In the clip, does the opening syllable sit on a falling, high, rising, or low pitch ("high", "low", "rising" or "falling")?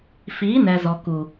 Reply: rising